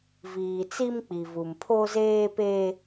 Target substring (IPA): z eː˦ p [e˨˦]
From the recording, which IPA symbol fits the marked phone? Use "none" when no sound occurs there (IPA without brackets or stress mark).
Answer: e˦